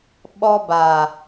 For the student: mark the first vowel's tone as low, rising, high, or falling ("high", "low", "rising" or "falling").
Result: high